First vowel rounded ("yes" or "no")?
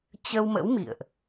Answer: no